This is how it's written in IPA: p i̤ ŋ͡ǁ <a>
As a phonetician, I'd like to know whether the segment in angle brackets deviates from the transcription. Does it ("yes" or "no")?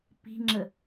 yes